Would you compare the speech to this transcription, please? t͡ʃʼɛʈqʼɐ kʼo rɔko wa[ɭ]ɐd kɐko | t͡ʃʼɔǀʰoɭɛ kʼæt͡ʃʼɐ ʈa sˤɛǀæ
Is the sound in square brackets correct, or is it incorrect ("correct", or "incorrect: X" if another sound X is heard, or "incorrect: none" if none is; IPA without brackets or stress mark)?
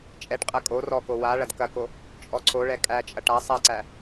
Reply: correct